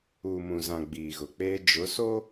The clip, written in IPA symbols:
uː˨ m ũ˨ z ã˨ ɡ͡b iː˨ ɣ ʊ˨ k͡p eː˦ d͡ʒ ʊ˨˦ s o˦

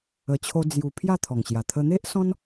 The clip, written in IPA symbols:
ə˧ t͡ɕʰ o˦ d͡z j u˧ pʰ j a˥˧ t̪ʰ ɔ˨˩ ŋ ɕ j a˨˩ t̪ʰ ə˧ n̪ e˦ ʔ s ɔ̃˦ n

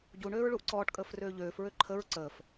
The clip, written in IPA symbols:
ɟ u ɳ øː ɹ ɭ u ʔ ǀ ɔː ʈ kʼ əː f r øː ʎ øː f ɹ ø ǃʰ ə ɹ ǀ əː f

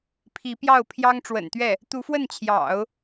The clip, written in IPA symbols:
pʰ i˧˥ p j ɑ˥˩ ʊ̯ pʰ j ɑ˥ ŋ ʈ͡ʂ w ə̰˨˩ n t̪ ɥ ɛ˥˩ | t̪ u˧˥ f w ə˥˩ n t͡ɕʰ j ɑ̰˨˩˦ ʊ̯

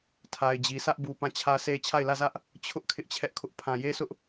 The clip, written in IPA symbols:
tʰ a˨ ɪ̯ d͡ʑ i˨ s ä˦ ʔ b u˨ p ã˦˨ t͡ɕʰ ä˦ sʰ e˦ t͡ɕʰ a˦˨ ɪ̯ l ä˦˨ z ä˦ ʔ | t͡ɕʰ ʊ˦ ʔ kʰ ɪ˦ ʔ t͡ɕʰ ɛ˦ ʔ kʰ ʊ˦ ʔ pʰ ã˨ j e˦ s ʊ˦ ʔ

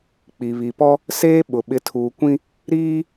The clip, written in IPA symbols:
k͡p i˨ β i˨ p ɔ˦ | s eː˦ ɓ ʊ˨ ɓ ɪ˨˦ tʰ uː˨ kʷ ĩ˦ | ɾ iː˦

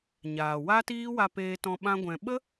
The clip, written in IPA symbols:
ɲ aː˨ w a˦ t iː˦ w a˧ p eː˧ t ɔ̃˧ ɓ ã˦ ɡʷ ɛ̃˧ ɓ ə˦

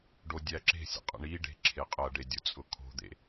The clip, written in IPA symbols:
ɖ o dʲ æ ǁ e̤ sʲ ə̰ qʼ ə̰ ɳ i ɖ e̤ ǁʰ e qʼ ɐ ɖ e dʲ ʊ t͡sʼ ʊ kʰ o̤ d̪ ḛ

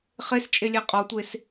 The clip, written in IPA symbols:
χ e s t͡ʃʼ e lʲ æ qʼ ɒ tʷ e s

